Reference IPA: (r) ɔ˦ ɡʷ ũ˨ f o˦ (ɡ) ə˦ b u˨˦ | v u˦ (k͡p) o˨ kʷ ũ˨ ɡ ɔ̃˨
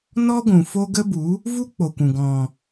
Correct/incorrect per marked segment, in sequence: incorrect: n, correct, correct

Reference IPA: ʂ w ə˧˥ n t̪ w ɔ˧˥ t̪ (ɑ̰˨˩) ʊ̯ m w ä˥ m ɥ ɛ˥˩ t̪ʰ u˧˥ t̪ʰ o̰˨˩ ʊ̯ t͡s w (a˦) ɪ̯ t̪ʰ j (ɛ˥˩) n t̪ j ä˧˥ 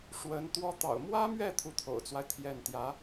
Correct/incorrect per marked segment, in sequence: correct, correct, correct

